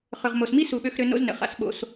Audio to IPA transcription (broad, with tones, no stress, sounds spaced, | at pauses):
χ ʏ˩ ʁ m o˩ s m i˥ s u˨ ɓ ø˦ x ɾ ø˦ n o̰˦ z n ə̰˩ χ a̰˨ s ɓ o̰˨ s